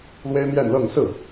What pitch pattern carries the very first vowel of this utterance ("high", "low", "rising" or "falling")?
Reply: high